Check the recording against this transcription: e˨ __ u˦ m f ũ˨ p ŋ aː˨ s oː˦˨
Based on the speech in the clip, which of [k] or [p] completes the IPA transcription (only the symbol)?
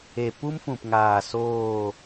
p